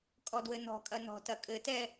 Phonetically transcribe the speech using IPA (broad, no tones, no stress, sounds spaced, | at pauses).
kʼ ɔ d w ɘ n ɔ̤ kʼ ɐ n ɔ̤ t ɐ kʼ ɘ t ɛ